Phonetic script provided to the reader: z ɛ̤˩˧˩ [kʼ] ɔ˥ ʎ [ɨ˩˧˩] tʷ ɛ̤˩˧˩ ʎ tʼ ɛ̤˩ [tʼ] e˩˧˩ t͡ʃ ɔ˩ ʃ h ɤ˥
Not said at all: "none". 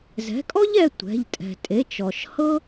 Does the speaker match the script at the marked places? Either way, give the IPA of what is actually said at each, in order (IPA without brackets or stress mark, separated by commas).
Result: kʼ, ɛ˩˧˩, tʼ